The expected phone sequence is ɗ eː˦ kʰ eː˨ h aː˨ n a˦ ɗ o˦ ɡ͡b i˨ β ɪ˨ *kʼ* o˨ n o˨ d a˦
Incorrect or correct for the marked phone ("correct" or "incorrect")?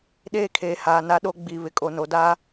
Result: correct